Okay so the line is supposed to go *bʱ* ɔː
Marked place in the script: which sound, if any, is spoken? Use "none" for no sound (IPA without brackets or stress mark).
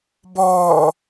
b